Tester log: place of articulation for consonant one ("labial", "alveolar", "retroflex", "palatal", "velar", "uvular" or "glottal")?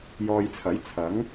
palatal